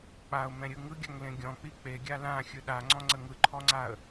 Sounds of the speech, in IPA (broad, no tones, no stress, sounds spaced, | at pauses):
k͡p a ʊ̯ m ɛ̃ ɾʲ ɯ ŋ ɯ ɡʲ a ŋ l ẽ ɡʲ ɔ̃ k͡p i k͡p e ɡʲ a l ã xʲ ɯ ɗ a ŋ͡ǀ ɔ̃ ŋ͡ǀ ə ŋ ɯ ǃʰ ɔ ŋ͡ǀ a ə̯